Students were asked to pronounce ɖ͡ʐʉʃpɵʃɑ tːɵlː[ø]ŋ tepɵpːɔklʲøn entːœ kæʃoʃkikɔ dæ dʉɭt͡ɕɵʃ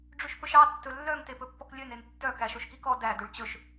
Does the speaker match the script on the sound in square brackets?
no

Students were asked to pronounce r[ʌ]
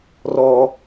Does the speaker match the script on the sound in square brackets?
no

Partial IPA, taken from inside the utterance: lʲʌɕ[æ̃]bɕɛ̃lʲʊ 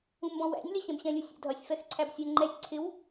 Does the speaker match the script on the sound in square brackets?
no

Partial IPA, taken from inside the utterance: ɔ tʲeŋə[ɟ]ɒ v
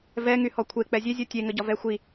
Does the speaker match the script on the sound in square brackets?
yes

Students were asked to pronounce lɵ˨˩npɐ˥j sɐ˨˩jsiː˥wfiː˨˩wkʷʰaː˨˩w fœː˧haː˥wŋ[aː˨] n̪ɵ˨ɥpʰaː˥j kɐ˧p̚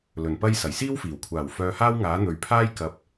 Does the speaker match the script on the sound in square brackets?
no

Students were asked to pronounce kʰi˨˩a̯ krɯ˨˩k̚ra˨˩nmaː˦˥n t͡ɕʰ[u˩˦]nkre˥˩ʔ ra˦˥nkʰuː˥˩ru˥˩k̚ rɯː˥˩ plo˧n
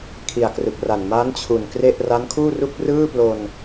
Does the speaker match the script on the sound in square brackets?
no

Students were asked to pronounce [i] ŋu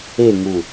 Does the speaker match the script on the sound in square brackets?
no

